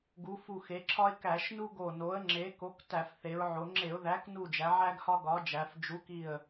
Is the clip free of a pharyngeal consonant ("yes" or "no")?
no